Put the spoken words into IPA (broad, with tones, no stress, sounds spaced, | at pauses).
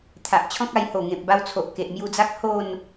t̪ʰ a˨ ʔ t͡ɕʰ ɔ̃˦ k̚ a˧ j h o˨˩ ŋ ẽ˨ p̚ b a˧ w t͡sʰ o˨ ʔ k e˨ ʔ m j u˧ d͡z a˦ k̚ h o˥˧ n